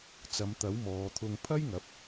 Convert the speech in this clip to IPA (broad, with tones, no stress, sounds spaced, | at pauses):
t͡s ɐ˨˧ m t̪ ɐ˨˥ w m ɔː˨˧ t̪ʰ ʊ˧ ŋ pʰ ɐ˥ j ŋ ɐ˨˥ p̚